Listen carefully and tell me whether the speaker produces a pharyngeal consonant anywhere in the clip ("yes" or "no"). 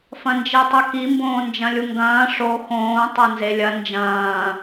no